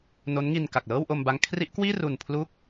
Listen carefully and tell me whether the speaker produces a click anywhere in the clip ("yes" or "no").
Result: no